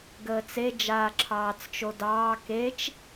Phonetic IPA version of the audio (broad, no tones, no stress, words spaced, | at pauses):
ɡəːt͡se d͡ʒaːǁʰɑːt͡st͡ʃodɑː ket͡ʃ